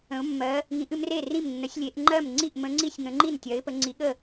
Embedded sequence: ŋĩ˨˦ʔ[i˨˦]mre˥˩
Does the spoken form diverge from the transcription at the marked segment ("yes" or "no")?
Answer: yes